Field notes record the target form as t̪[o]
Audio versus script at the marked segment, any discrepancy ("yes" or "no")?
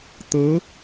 yes